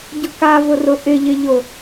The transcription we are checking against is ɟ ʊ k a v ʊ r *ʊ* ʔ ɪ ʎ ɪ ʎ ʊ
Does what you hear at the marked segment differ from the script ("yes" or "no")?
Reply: no